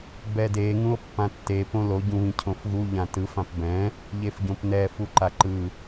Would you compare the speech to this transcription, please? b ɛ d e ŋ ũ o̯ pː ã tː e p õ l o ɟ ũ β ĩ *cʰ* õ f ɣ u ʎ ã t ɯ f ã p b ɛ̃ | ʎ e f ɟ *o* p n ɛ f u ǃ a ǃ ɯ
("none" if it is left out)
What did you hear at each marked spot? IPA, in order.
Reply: cʰ, õ

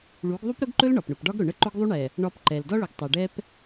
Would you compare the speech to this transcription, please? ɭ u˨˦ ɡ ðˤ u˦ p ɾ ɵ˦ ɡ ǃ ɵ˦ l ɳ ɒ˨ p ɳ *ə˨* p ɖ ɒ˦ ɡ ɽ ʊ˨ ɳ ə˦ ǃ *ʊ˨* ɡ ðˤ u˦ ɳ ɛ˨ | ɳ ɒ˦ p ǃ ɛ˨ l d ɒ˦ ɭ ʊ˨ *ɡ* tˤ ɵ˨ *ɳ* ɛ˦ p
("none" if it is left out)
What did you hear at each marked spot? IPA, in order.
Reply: ʊ˨, ʊ˦, ɡ, ɖ

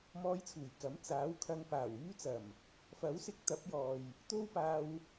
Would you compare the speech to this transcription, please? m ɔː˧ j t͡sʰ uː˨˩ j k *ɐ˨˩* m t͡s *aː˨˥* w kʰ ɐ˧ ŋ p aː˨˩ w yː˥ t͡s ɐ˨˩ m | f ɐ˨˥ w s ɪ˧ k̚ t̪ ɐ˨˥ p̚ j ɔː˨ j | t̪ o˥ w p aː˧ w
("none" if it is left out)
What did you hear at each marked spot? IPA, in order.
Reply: ɐ˨˥, aː˨˥

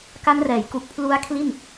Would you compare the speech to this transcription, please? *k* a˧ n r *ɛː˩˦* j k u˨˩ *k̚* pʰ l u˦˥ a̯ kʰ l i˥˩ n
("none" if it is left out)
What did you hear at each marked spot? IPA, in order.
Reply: k, ɛː˩˦, k̚

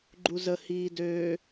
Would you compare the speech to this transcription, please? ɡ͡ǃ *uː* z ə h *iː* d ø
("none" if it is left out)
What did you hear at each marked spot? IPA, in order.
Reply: u, iː

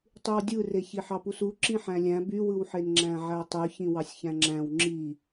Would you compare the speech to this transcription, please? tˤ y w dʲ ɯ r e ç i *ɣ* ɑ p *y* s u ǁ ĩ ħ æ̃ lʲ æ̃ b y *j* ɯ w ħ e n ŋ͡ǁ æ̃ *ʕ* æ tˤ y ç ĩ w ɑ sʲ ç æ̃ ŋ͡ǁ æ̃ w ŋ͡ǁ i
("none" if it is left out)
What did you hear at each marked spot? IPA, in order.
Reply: ħ, u, w, ʕ

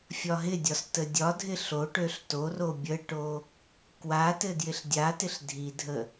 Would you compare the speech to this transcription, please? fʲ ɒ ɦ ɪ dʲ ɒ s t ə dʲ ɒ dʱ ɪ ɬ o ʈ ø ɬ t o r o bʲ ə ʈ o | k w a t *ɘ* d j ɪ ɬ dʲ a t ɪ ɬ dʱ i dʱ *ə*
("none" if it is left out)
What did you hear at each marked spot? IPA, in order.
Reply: ɘ, ə

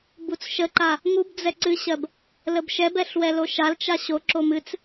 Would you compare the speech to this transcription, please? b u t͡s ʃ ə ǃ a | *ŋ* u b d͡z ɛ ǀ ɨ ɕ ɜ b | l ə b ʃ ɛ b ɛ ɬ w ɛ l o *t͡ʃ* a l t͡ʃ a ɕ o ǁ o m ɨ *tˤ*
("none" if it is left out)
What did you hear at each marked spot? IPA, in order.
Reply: ŋ, ʃ, t͡s

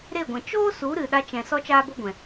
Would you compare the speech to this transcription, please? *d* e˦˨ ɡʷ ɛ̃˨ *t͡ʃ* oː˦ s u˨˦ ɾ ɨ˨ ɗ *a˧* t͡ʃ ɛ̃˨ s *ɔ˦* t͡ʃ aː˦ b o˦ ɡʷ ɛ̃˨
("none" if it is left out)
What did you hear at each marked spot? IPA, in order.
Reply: ɾ, t͡ʃ, a˧, ɔ˦

